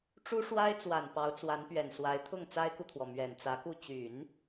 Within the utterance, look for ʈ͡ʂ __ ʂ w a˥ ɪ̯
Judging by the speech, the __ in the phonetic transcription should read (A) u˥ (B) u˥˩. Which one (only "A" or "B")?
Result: A